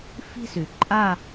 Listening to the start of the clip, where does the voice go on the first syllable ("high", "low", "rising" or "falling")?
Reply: falling